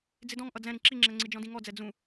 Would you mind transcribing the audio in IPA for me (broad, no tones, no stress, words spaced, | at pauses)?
d͡zɪdɔ̃ŋ ʔʌd͡zɛ̃ ɾĩǁiŋ͡ǁɛŋ͡ǀi d͡ʒɔ̃dĩŋɔd͡zɛ d͡zũ